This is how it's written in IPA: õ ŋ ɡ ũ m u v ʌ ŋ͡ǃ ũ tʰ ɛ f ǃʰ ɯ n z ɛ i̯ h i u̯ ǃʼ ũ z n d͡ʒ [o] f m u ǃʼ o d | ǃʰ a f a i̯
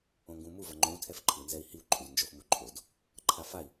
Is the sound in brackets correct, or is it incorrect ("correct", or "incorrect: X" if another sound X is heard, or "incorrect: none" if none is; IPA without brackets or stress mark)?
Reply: correct